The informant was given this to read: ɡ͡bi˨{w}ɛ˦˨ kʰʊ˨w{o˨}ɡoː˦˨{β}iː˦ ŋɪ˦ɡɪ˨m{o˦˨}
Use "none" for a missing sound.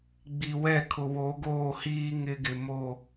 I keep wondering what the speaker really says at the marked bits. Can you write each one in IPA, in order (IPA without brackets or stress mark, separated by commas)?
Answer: w, o˨˦, h, o˦˨